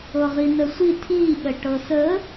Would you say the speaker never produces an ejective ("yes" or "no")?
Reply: yes